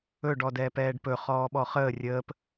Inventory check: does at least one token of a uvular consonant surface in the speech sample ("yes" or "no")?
yes